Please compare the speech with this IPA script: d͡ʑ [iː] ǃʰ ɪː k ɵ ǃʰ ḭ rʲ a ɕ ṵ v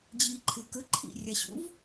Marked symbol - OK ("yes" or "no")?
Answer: yes